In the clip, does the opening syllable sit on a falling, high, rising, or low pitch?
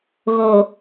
low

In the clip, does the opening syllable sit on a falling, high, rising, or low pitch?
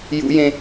high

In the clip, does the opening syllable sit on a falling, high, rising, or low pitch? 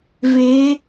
rising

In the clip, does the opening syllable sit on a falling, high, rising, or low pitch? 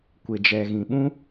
low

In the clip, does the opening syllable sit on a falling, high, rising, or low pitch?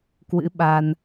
rising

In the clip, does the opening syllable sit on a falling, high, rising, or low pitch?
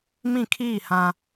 falling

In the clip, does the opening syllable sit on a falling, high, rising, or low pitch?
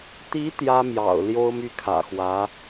rising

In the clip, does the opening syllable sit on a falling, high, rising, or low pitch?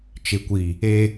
low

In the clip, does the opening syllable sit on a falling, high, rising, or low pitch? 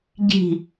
falling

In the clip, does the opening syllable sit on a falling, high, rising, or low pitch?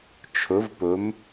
rising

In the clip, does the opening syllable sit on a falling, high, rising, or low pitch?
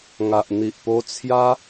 low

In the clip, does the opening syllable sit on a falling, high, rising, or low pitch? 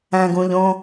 low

